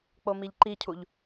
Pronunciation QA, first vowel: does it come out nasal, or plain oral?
oral